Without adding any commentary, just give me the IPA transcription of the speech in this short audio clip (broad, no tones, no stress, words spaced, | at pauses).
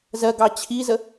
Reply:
zɜɡɑ t͡ɕʰizə